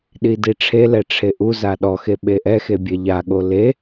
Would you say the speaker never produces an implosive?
no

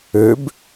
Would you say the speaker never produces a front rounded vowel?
no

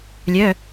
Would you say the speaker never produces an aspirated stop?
yes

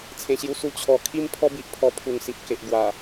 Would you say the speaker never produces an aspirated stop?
no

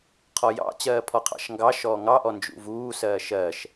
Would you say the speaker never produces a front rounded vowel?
yes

